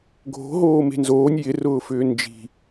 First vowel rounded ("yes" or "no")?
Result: yes